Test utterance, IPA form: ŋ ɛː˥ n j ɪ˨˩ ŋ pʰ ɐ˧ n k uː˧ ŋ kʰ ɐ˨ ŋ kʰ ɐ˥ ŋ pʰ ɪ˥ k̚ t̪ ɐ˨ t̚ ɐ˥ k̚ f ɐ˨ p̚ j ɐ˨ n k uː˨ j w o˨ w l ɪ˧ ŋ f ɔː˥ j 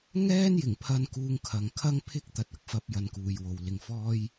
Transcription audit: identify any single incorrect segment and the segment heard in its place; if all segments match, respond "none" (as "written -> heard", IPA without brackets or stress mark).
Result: none